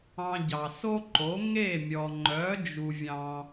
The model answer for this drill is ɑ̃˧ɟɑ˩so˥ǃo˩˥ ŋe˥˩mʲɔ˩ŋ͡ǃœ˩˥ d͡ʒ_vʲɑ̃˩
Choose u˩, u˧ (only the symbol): u˩